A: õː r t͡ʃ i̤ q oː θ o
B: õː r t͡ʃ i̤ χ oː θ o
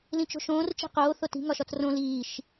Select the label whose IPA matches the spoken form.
A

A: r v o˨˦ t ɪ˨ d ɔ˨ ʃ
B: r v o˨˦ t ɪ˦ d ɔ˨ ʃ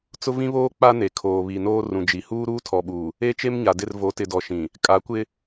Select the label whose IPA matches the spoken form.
A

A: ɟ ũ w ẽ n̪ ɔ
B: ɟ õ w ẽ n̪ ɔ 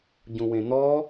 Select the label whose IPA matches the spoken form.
A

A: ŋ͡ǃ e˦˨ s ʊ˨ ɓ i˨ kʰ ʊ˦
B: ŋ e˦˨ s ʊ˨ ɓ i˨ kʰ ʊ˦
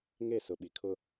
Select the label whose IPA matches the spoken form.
B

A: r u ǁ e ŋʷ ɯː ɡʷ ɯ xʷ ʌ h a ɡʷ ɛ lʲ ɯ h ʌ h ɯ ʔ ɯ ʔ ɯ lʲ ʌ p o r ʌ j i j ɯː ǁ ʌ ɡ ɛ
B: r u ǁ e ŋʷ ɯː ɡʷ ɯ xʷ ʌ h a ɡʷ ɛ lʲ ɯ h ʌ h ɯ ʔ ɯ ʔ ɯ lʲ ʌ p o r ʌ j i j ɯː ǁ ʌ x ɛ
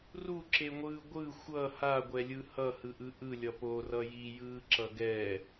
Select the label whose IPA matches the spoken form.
A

